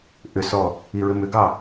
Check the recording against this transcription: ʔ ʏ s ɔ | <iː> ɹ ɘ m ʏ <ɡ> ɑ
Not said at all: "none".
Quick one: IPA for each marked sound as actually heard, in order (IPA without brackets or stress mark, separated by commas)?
i, ɡ